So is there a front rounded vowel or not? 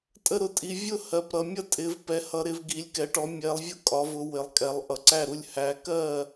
no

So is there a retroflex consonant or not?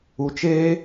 no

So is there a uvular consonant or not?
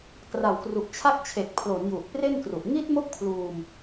no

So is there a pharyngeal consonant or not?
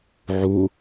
yes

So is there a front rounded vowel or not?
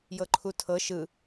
no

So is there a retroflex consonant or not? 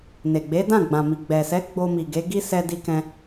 no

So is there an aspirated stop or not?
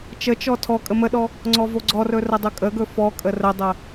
yes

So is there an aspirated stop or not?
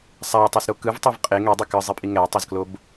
no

